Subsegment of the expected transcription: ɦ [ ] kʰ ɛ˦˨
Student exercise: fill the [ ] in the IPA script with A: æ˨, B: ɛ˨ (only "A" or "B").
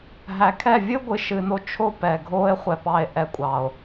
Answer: A